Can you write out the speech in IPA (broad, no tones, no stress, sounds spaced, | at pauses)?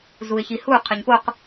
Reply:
z u ɪ̯ ç i h u qʰ ɯ ɲ p o q